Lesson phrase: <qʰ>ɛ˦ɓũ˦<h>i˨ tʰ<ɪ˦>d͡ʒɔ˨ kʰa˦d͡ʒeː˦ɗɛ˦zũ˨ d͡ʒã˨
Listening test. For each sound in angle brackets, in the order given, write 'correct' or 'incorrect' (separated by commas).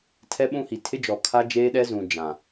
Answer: incorrect, correct, correct